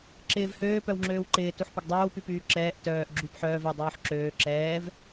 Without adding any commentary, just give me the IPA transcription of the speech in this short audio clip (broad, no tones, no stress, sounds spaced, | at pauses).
ǁ ɪː v h øː p œ w ŋ͡ǁ øː w ǃ ɪː t u ħ p ɪ ɡ dˤ øː w p y p yː ǁ ɛː ʔ t œː ʔ ɡ͡ǁ y p ħ œː v ɛ dˤ yː ħ ǁ øː ǁ ɛː v